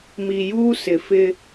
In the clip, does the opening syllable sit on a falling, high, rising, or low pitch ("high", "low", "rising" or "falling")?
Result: low